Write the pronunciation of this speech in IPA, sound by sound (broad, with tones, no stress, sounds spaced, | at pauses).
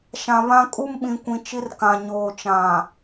ʃ ã˨ β ã˦ kʼ u˦ m ɓ ĩ˨ kʷ ĩ˨ t͡ʃ i˦ r k ã˨ ɲ oː˨ t͡ʃ ã˨